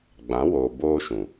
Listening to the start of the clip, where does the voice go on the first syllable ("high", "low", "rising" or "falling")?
rising